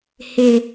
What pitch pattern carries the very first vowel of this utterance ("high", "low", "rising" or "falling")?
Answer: high